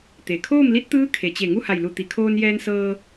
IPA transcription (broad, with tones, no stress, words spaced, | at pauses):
t̪e˩ kʰoː˥˨mli˧˥t̚t̪ɯː˧˥ kʰe˩t͡ɕe˧˩ ŋu˥˨ha˧˩jlu˧˩ t̪i˩kʰoː˧njɛː˧nsɤː˧